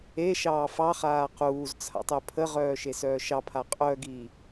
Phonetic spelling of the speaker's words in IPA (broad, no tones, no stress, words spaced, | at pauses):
e ʃɑːfɑχaː quːz t͡sʰa̰tˤœpʰəʁœː ʃesœːʃɑpʰa qʼœɡi